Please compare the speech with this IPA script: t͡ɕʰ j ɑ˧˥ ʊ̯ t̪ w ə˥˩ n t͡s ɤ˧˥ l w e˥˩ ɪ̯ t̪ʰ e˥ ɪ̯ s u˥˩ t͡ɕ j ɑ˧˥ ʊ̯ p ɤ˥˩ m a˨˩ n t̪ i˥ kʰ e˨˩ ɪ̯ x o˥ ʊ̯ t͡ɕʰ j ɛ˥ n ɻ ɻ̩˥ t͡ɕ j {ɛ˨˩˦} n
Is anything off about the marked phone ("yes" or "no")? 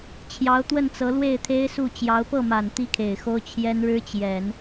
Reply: no